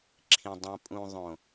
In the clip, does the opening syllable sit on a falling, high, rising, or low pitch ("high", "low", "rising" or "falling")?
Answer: low